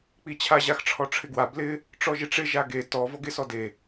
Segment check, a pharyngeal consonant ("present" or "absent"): absent